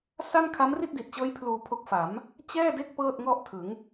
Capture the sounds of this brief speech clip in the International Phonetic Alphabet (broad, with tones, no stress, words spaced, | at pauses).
sa˥˩n kʰa˦˥mri˥˩t̚di˨˩t̚t͡ɕɤː˦˥j pʰluː˧pʰo˦˥k̚ fa˩˦m | t͡ɕɛː˥˩de˥˩k̚ pɤː˥˩t̚ŋɔ˥˩ʔtʰɯ˩˦ŋ